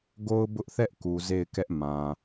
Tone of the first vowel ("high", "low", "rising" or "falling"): high